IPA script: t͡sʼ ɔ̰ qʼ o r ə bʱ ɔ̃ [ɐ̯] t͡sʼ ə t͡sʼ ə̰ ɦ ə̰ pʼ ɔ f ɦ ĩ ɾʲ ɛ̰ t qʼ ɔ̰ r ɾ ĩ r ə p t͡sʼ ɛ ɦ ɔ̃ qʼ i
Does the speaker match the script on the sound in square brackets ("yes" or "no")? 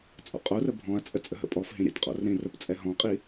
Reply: yes